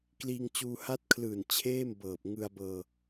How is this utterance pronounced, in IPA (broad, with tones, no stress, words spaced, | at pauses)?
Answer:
kliː˧ŋt͡ɕuː˧ha˦˥t̚kʰlɯː˨˩n t͡ɕʰeː˥˩mbɤː˨˩p̚ ŋɯ˧a̯bɤː˧